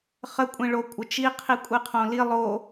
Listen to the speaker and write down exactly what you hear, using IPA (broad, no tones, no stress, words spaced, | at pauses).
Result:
χə kʷʼĩɭo kʷʼət͡ʃiqʰi kʷʼiqʰõli lˠo